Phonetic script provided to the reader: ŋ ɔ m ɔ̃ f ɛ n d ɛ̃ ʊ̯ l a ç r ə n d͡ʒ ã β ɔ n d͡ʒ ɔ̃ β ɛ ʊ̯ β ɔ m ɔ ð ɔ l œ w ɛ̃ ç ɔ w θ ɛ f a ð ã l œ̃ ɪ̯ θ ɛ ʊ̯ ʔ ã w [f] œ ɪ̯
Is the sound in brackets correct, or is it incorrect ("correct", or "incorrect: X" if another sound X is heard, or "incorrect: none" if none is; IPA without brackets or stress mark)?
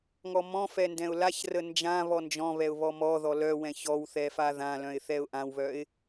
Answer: incorrect: β